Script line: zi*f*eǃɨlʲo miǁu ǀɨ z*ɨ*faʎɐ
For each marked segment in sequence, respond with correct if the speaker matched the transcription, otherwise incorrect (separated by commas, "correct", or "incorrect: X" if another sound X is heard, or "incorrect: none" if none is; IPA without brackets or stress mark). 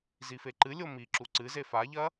correct, incorrect: e